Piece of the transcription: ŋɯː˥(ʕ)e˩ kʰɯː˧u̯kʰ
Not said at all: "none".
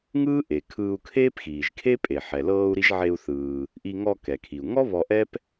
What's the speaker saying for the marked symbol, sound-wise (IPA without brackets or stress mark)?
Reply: ʔ